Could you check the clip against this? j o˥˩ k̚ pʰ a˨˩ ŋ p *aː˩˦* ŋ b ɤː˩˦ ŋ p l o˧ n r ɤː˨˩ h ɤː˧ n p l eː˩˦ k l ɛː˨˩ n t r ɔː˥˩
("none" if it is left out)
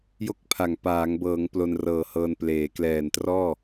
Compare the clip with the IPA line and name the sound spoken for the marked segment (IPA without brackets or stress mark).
aː˩˦